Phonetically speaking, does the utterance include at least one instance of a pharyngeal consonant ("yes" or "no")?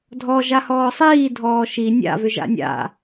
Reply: no